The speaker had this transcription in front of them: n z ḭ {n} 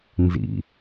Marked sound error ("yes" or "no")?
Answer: yes